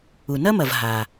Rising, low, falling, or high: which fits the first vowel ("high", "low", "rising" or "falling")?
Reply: low